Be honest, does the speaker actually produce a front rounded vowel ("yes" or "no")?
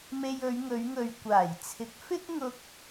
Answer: no